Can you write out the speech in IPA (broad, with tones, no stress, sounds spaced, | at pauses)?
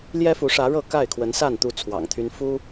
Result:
l j ɛ˦ f u˨˦ ʂ ä˨˦ ɻ ɤ˥˨ k a˥˨ ɪ̯ kʰ w ə˨˦ n s a˥˨ n t̪ u˥˨ t͡sʰ w ɑ̰˨˩ ŋ t̪ʰ y˦ n f u˦